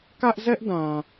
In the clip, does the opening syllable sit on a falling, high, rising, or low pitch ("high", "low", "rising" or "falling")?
high